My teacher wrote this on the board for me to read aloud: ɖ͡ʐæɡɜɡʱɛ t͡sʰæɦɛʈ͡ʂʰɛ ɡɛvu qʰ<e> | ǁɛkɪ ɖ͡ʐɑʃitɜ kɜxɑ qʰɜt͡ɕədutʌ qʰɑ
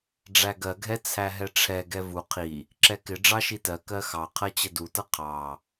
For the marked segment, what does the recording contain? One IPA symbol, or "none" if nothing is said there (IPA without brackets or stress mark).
i